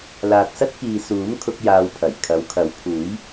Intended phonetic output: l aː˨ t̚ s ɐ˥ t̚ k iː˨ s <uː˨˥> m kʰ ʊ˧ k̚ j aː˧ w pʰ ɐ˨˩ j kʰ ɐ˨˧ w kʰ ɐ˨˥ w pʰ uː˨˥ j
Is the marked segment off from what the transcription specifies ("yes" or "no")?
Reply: no